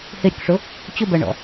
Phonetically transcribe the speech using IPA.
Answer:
hɪɾʲʊkʂʊ | t͡ɕʊbɜɳɔ̰

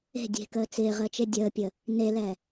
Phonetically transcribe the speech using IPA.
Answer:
e̤ dʲe̤kəː t͡sɪː ʁəːt͡ʃedʲəːpʲəː | nelɛː

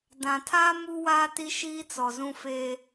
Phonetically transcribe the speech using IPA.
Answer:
dã˨tʰaː˦ mu˦waː˦ ti˦ʃiː˦t͡sɔ˨zũ˦ feː˦

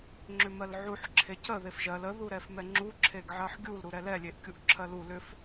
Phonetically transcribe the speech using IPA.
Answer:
ŋ͡ǁʏmɜlʕuħ ǁʰecə ðefʒɜl ə ðuɾɛfmɛŋ͡ǁu ǁʰeɡʕɜħɡʲul ɾuɾɛlɛ lʲeʔkʲuʔǁʰɜlu lʏf

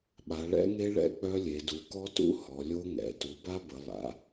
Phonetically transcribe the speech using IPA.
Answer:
ɓa˩˧ɭɛ̰˦˥ŋe˦˥ ɭɛ̰˦˥k͡pœ˦˥lʲe˩˧ du˩˧kɔ˦˥tṵ˦˥ hɔ˩˧ lʲo˦˥ŋɛ̰˩˧ tu˩˧ba˦˥bə˩˧ lˠa̰˩˧

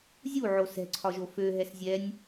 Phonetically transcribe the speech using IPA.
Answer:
zʲuʕo sɛ̤ǀʰɒʒo fø ɦɛszʲɛnʲ

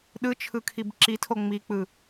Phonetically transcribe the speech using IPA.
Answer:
ɗɯt͡ʃʰɯkʰib ǁitʰo ŋ͡mik͡pɯ

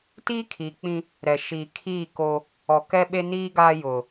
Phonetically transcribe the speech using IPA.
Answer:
tiː˦kʰiː˨k͡pĩ˦ | ɾɛ˨ʃiː˨ kʰiː˦˨ ko˦ | ɔ˨ kɛ˦ ɓe˦niː˦ɡaː˦ jʊ˨

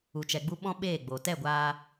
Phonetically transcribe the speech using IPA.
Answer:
u˨t͡ʃɛ˨ɡ͡bu˧ ɓɔ̃˦ɓeː˦˨ɡ͡bo˨ tɛ˦˨ɡʷaː˧

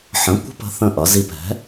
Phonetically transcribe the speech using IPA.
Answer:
ħə̃˩˥ kʷə̤˦˨pə̤˩˥ θə̃˦˨ʔʌ˩˥zi˦˨p ɛ̤˩˥

